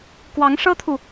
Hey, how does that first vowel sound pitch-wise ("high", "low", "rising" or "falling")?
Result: rising